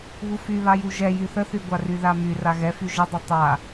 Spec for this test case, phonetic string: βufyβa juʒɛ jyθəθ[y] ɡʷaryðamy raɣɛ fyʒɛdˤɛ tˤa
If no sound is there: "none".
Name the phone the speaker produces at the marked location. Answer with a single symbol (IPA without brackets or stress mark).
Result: y